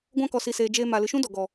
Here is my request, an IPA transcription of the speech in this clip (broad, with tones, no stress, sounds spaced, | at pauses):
ɡʷ ã˧ k ɔ˨ s i˨ s eː˨ d͡ʒ eː˧ m a˨ l ɨ˨ ʃ ũ˦ d ɔ˨ ɡ ɔ˨